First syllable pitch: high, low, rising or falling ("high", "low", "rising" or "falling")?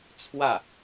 falling